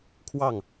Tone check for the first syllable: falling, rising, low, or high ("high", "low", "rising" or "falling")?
falling